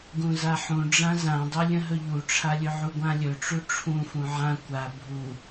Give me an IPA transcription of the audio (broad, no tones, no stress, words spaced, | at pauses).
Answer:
ɡũzaħũ ɖ͡ʐãzãdˤɵlʲə̃ ɦɵʎuʈ͡ʂʰalʲɵ ʕuɡʷãlʲɵ ʈ͡ʂuʈ͡ʂʰũ fũʕã kʷa bʱu